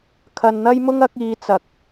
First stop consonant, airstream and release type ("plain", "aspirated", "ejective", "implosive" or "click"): aspirated